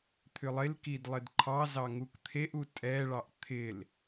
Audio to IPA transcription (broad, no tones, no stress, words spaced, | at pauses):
t̪ʰʏlˠɪlkid lˠɪdǃʰɑzɑ ŋukt̪ʰeʔu tʼɛɭɑʔ t̪ʰɪl